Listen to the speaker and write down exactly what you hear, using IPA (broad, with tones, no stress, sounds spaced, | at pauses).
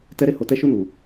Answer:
t ɛ˧ ɾ e˧ h o˨ t ɛ˧ ʃ u˧ n u˨